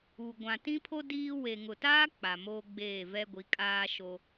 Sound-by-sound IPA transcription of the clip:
u˨ ɡʷ ã˨ t ĩ˦ pʰ o˦ d iː˦ w e˨ ŋ ʊ˨ t aː˦ k͡p a˨ m oː˦ ɡ͡b eː˦˨ v ɛ˦ ɡʷ i˨˦ kʼ aː˦ ʃ o˦

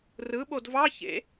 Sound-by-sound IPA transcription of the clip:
r ɯ ɓ o d v ɑ ç ḛ

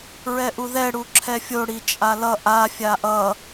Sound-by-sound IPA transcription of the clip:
ɹ ɛ ʔ u ð ɛ ɽ u ǁʰ ɛ fʲ o ɽ i t͡ʃʼ a l ʌ ʔ a fʲ a ʔ ʌ

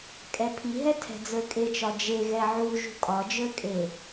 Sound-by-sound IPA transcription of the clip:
kʼ ɛ pʰ i ɦ ɛ tʰ ɛ̤ d͡z ə˞ kʼ e t͡ʃ ɒ d͡ʒ e ɣ ɛ ʕ u ʒ ṳ kʼ ɒ d͡ʒ ə˞ kʼ e

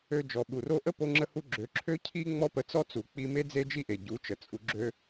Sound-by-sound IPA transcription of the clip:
ø˧ d͡ʒ ɔ˨ ɓ u˨ r o˦ ʔ ə˦ p o˧ ŋ͡ǁ ə˧ h u˧ ɡ͡ǁ ø˨˦ ǁʰ ø˦ cʰ i˦ ŋ͡m ɔ˦ p ə˧ t͡s ɔ˦ t͡s u˨ k͡p i˧ m e˦ d͡z e˦ d͡ʒ i˦ ʔ e˨ ɟ u˨˦ t͡ʃ ə˨ t͡sʼ u˧ ɡ͡ǁ ø˦

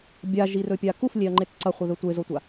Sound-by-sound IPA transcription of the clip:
bʲ a ʒ i r ɵ pʲ a k u f lʲ e ɐ̯ ŋ͡ǃ e t ǀ ɐ χʷ ɐ ð ɵ tʷ e z o tʷ a

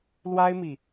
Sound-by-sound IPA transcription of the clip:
l w a˥ ɪ̯ m i˨

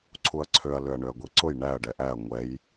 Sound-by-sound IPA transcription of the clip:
ǀʰ u ɐ̯ ǀʰ ø ɐ̯ l ø ɐ̯ ɳ ø ɐ̯ ɡʷ i ǀ ʊ j ɳ æ ɐ̯ ɖ ɛ ʔ æ ɐ̯ ŋʷ ɛ j

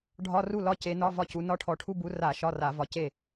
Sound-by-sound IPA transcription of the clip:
ɖʱ ɒ˧˥˧ r u˥˩ l ɒ˧˥˧ c e˨˦ n ɒ˧˥˧ v ɒ˥˩ c u˨˦ n ɒ˧˥˧ ʈʰ ɔ˧˩˧ ʈʰ u˧˥˧ b u˨˦ r a˧˩˧ ʃ ɒ˧˥˧ r a˧˩˧ v ɒ˨˦ c e˥˩

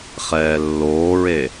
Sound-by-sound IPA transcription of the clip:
χ ɛː lː oː ɹ e

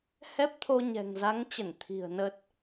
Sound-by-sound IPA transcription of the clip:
h ɛ˦˥ p̚ t̪ʰ o˧ ɲ ɛ̤˨˩ ŋ z a˨˦ ŋ t͡ɕ ə˧˩ n t̪ʰ i̤˨˩ ə̯ n ə˦˥ t̚

